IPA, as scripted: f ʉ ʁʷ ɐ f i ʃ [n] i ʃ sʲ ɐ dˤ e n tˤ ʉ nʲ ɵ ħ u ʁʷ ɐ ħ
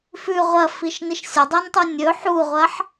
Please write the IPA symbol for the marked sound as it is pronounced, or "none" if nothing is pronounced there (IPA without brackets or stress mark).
n